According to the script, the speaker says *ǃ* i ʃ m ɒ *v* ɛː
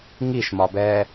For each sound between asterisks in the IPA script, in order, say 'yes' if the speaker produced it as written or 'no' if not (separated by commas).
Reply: no, no